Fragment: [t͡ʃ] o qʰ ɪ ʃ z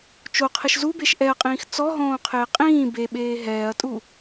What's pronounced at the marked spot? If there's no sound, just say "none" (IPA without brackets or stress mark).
t͡ʃ